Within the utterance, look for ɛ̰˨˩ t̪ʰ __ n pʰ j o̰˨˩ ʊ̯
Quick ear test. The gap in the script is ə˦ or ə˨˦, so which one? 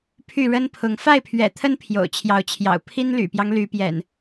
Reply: ə˦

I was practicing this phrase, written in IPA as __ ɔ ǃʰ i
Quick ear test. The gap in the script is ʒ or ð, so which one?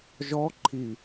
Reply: ʒ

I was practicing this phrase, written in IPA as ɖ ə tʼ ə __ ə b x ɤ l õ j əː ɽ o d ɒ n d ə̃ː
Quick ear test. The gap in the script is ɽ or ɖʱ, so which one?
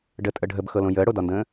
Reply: ɖʱ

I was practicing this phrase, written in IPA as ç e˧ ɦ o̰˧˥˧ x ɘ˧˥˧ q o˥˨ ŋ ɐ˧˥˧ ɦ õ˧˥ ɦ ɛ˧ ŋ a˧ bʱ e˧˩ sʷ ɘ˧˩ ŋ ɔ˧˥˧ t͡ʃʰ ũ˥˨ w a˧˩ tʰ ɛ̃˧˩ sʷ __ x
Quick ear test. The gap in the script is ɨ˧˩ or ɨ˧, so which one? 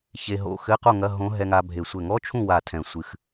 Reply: ɨ˧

